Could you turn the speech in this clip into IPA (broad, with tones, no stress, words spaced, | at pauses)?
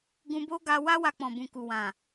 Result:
ɡũ˧bo˦ ɡa˧wa˦wa˧k͡pɔ̃˨ bũ˨ku˨wã˨